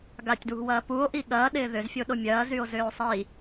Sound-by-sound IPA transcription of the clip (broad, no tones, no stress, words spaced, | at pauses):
ɡatʲdwṳwɐː puo̯ʔi ɠɐːɗɪː ðʏzfʲoɗo mʲɐːzyo̯zʏːo̯ sˤi